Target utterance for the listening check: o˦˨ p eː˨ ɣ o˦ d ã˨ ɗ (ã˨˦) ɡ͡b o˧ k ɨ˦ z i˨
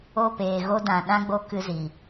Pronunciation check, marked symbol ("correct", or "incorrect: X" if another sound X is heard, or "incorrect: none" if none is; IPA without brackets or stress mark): incorrect: ã˦